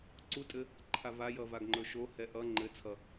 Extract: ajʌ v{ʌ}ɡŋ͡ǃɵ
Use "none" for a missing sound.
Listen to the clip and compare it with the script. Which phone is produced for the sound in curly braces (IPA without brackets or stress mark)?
a